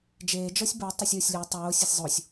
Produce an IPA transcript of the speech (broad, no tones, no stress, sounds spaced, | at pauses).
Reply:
d͡ʒ eː d͡ʒ ɔ sʲ b ə˞ tˤ o sʲ oː sʲ lʲ ɔ tˤ oː sʲ e sʲ zˤ o sʲ